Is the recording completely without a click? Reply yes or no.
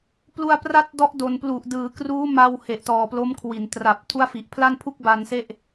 yes